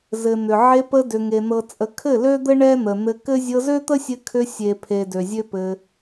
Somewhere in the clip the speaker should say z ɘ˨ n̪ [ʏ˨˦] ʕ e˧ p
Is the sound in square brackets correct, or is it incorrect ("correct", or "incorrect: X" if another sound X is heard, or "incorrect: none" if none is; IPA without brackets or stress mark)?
incorrect: ʏ˨